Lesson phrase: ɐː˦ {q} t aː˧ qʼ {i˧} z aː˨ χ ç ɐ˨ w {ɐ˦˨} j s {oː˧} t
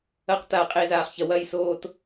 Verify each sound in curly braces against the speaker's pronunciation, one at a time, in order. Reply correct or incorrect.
correct, incorrect: e˧, correct, correct

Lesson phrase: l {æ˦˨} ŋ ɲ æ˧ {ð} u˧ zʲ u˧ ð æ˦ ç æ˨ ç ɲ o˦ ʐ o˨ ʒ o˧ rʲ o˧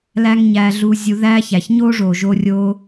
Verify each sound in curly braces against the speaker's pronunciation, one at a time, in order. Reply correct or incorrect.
incorrect: æ˦, incorrect: ɮ

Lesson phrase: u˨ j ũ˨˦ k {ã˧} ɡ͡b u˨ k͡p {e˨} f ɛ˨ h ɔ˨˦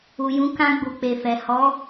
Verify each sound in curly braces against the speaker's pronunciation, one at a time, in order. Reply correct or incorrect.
correct, correct

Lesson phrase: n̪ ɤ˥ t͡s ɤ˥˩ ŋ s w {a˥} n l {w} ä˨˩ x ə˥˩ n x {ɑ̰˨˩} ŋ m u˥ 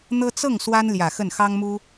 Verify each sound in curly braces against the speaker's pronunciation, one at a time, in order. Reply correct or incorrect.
correct, incorrect: j, incorrect: ɑ˥

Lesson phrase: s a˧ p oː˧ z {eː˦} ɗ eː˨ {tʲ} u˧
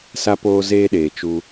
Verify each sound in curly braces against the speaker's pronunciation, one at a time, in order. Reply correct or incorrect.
incorrect: eː˧, incorrect: t͡ʃ

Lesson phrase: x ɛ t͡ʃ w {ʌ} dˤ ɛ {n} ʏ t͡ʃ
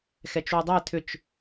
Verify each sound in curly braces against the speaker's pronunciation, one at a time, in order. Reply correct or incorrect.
incorrect: ə, incorrect: tʰ

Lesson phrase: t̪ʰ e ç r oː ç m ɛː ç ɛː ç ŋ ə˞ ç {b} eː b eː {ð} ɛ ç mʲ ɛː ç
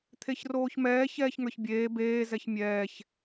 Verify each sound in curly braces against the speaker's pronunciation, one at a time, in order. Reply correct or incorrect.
incorrect: bʲ, incorrect: z

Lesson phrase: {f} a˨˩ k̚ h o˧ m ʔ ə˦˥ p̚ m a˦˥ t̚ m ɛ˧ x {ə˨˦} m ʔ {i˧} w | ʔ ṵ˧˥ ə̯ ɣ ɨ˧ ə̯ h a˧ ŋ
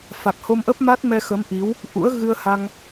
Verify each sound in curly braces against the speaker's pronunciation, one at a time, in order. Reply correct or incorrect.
correct, correct, incorrect: i˨˦

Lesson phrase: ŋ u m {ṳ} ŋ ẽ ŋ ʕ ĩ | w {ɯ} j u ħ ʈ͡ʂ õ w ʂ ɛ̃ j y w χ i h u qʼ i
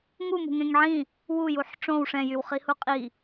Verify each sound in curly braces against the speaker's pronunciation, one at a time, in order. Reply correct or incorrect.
correct, incorrect: u

